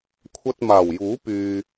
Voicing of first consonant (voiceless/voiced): voiceless